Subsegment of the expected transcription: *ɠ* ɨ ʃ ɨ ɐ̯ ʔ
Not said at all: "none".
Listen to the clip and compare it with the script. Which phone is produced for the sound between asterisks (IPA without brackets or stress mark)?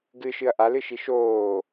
ɡ